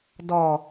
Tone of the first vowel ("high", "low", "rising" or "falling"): low